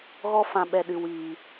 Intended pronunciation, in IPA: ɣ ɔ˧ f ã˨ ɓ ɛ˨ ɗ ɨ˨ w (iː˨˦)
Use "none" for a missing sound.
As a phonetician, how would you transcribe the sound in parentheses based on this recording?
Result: iː˨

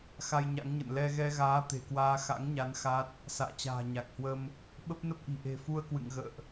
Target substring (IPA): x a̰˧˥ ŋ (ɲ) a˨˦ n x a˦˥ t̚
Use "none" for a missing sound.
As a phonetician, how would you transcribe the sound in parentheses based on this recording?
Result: ɲ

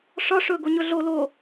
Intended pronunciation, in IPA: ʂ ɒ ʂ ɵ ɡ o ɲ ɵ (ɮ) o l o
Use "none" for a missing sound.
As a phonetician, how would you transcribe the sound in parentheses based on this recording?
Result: ɮ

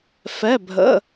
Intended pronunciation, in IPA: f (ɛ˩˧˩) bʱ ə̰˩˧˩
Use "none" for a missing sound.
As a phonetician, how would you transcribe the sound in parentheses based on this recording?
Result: ɛ˩˧˩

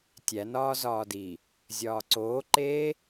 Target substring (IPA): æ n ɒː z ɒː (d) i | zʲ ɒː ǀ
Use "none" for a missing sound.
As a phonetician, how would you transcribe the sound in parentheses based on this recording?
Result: d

